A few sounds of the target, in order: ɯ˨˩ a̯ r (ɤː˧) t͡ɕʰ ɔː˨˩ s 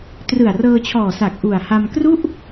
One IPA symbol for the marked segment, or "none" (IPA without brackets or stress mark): ɤː˧